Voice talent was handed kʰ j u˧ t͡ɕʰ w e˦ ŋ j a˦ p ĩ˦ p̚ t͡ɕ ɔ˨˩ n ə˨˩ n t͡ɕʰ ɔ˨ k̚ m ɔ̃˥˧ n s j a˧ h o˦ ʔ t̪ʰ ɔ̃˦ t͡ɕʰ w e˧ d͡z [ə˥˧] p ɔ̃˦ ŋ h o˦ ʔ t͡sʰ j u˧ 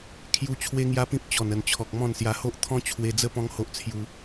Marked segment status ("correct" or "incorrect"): correct